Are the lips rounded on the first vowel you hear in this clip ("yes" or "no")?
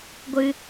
no